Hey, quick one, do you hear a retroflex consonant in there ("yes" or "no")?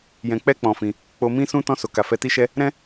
no